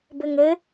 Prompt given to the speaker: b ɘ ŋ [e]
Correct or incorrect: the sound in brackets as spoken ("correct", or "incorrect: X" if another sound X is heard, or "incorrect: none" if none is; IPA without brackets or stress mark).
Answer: incorrect: ɘ